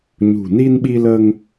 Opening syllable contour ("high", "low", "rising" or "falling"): low